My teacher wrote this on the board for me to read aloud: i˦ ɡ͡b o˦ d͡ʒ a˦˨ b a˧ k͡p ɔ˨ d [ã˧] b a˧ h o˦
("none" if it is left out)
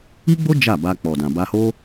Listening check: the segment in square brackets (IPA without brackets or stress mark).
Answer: ã˨